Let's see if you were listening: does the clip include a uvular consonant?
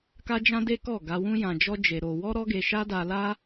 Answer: no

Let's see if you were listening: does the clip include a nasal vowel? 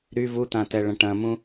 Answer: yes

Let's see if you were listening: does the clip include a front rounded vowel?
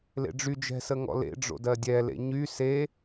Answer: yes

